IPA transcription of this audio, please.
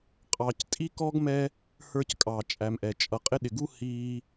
qʼ ɑ˨ c tʼ i˥ k ɔ˥ ɡ m ɛ˦ | h ə˞˥ c kʼ ɑ˩ t͡ʃʼ æ˨ m ʔ ɛ˩ t͡ʃʼ ʌ˩ qʼ ɪ˦ ɗ ɪ˩ ɡ u˥ h iː˦

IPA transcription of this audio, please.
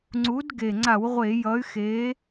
ŋ͡ǀ u˨˥ d ɡ e˨˩ ŋ͡ǀ a˧˩˧ w ʁʷ e˧˩˧ j ʌ˨˥ y̯ x e˨˥

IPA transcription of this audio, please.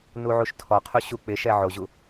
n u ʕ u ʃ tʰ ɔ qʰ u ɕ u k͡p ɪ ʃ ɛ ʕ o ʑ u

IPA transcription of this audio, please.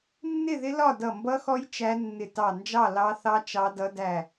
nː ɪ˥˨ ð ɪ˦˥ l ɒ˥˨ d ʌ˧˩ m b ʌ˦˥ x ɔ˦˥ j t͡ʃ æ˦˥ nː ɪ˧˩ t ɑ˧˩ n d͡ʒ ɑ˥˨ l ɑ˦˥ θ ɑ˦˥ t͡ʃ ɑ˦˥ d ʌ˦˥ d æ˥˨

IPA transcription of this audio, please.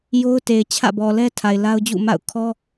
j o˦ ʊ̯ t e˨ ɪ̯ t͡ɕʰ ä̰˦˨ b ɔ˨ l ɛ˦ tʰ a˨ ɪ̯ l a˦ ʊ̯ d͡ʑ ṵ˦˨ m a̰˦˨ ʊ̯ kʰ ɔ˦

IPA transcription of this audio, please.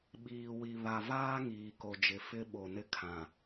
ɓ iː˨ w i˨ β a˨ v aː˦ ŋ iː˨ k o˨ d͡ʒ ɪ˨ f ɪ˦ ɓ o˨ n ɪ˦ kʰ ã˨

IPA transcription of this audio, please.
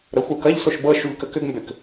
ɾ ə xʷ ə˞ k ɐ ʎ s o ʃ b ɤ ʃ u ʎ k ə k ʏ ɡ m b ʏ k

